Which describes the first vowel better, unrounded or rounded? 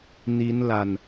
unrounded